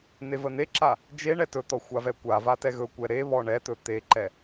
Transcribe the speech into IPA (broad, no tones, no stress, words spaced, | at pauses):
n̪evən̪eǁa | d͡ʒe ɳɛtɵt̪ɔ xʷavɛkʷava tɛɣɵkʷɛ ɾe βɔɳɛt̪ɵ t̪eǃɛ